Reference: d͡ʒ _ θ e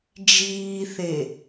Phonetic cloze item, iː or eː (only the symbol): iː